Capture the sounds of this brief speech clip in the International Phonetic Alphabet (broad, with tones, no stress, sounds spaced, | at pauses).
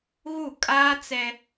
ɣ u˦˨ kʼ aː˦ t͡s ɛ˦